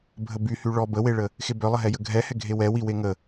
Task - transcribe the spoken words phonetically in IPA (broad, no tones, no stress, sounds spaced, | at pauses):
bʱ ə b y h y ɭ ɔ b ə w e ɭ ə | x e b œ lˠ ə ɦ ɛ j ə ɡʱ ɛ h ɛ ɡʱ e w ɛ w i w e ŋ ə